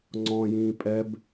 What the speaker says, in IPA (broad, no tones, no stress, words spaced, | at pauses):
ŋ͡ǀɔ̃ jĩːpʼɛb